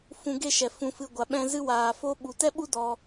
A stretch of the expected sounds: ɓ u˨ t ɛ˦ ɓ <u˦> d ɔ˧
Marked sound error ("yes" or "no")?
no